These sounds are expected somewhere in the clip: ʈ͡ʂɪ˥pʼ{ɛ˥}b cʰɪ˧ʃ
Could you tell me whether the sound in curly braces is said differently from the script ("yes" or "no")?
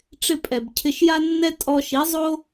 yes